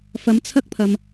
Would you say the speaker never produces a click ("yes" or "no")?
yes